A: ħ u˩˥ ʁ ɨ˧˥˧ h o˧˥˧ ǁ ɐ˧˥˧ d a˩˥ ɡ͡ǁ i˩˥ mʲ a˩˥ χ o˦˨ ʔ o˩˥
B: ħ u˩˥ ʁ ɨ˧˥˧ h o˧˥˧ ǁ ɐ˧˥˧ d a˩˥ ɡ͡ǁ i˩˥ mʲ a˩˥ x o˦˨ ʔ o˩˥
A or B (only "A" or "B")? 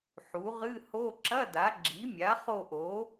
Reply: A